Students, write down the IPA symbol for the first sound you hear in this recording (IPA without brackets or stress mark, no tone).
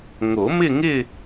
ŋ